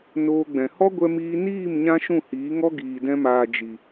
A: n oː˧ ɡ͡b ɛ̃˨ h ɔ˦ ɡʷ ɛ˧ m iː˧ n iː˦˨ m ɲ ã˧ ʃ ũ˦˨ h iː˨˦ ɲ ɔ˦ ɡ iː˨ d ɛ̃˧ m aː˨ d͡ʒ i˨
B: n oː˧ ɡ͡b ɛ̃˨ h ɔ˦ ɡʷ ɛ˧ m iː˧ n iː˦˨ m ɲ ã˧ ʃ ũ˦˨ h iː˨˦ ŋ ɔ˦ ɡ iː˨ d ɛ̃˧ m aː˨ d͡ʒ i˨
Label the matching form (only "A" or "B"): B